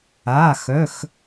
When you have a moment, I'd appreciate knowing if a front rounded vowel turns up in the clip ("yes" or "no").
yes